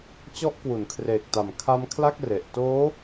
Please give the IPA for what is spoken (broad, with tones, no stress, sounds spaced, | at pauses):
t͡ɕ ɔ˦˥ ʔ k w u˩˦ n kʰ r eː˨˩ k̚ t a˨˩ m kʰ a˦˥ m kʰ l a˥˩ k̚ r e˨˩ ʔ t oː˦˥